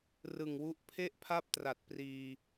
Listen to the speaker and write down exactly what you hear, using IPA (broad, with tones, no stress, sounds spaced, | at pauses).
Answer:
r ɯ˨˩ ŋ w u˦˥ ʔ pʰ e˥˩ ʔ pʰ a˥˩ p̚ t r a˨˩ t̚ p r iː˧